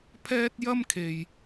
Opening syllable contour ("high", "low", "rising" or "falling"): high